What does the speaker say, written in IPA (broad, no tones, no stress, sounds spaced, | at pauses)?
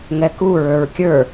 ŋ ɛ k u ɹ ə˞ ɹ kʲ ə˞